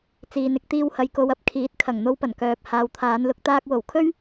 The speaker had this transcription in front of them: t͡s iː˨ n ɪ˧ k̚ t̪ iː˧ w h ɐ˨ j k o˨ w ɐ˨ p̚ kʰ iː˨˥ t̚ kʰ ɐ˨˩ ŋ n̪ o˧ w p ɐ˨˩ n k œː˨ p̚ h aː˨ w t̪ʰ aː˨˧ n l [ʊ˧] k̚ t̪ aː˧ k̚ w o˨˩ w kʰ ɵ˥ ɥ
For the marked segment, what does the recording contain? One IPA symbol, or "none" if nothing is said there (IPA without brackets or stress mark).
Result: ʊ˧